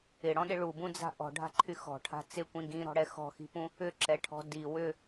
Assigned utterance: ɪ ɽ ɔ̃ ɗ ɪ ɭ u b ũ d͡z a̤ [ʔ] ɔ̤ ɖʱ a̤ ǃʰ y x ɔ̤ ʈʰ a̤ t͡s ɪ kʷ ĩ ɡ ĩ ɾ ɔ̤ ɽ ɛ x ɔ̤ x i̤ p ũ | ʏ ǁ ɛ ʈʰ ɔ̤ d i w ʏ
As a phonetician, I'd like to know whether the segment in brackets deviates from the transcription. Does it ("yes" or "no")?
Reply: no